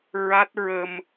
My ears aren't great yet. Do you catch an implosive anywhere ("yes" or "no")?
no